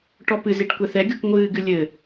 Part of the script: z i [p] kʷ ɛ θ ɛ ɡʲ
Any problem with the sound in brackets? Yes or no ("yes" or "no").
yes